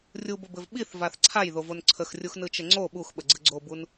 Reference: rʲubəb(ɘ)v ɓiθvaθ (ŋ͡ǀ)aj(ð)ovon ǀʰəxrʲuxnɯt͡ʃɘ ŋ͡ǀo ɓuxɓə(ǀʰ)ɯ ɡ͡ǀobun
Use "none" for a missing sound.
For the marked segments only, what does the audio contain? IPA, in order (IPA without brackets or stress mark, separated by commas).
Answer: ɘ, ǀʰ, ð, ɡ͡ǀ